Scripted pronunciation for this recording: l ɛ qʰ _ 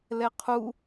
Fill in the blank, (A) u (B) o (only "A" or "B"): A